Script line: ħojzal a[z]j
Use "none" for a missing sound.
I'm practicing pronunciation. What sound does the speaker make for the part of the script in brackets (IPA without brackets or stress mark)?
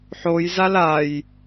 none